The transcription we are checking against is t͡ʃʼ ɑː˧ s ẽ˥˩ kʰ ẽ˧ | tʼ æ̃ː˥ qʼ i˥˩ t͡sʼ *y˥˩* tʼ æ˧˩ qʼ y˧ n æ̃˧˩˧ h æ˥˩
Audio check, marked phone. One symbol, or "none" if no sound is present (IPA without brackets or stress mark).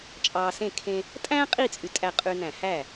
y˩˥